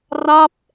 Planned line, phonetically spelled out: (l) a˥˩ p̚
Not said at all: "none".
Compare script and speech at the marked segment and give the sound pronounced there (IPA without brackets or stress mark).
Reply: r